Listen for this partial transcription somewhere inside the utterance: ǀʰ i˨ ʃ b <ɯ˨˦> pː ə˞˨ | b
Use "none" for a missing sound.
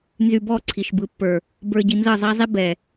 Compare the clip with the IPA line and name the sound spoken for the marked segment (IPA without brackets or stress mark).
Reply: ɯ˨˦